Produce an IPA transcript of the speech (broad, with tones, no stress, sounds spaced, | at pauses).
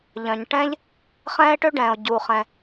ʎ œ̃˩ ɲ ʈ ɛ̃ː˥ ʎ | χ ɛ̃ː˥ e̯ ʈ ø˥ ɖ ɛ̃ː˩ o̯ ɟ uː˩ χ ɛ̃˩